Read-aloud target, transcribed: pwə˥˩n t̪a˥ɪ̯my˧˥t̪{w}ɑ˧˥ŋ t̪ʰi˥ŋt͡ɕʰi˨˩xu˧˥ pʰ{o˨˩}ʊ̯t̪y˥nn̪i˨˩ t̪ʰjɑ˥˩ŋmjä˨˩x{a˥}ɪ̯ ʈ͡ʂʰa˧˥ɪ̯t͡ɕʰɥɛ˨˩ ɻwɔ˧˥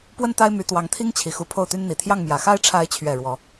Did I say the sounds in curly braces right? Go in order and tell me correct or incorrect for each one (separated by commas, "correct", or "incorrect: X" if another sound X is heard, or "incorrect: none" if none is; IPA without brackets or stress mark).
correct, incorrect: o˥˩, correct